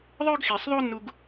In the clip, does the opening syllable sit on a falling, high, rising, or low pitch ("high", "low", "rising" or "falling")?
high